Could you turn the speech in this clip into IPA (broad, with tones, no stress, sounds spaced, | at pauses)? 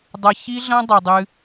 dˤ ɐ˧ ç i˦ ɮ ɐ̃˦ dˤ ɨ˨ dˤ ɨ˧